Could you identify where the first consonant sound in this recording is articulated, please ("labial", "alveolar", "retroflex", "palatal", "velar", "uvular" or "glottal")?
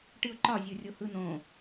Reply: retroflex